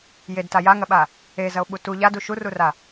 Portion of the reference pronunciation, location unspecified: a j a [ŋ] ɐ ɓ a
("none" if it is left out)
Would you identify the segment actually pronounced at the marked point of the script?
ŋ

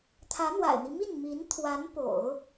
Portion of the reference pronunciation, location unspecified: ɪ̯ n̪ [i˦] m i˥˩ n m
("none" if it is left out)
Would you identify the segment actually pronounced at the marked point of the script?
i˦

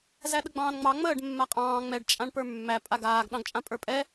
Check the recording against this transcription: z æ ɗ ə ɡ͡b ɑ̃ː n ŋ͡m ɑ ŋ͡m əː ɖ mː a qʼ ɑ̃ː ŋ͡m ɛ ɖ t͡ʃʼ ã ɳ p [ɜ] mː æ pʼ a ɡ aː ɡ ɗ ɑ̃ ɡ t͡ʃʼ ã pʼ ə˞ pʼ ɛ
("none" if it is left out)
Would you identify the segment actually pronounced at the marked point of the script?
ə˞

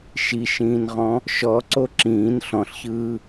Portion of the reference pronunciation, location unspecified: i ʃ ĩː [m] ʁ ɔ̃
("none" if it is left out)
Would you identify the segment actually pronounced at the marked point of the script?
n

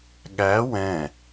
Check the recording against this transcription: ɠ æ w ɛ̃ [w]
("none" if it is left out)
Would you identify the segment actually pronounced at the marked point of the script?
none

